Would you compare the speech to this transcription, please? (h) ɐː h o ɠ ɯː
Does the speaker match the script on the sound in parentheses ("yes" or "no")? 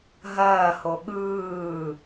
no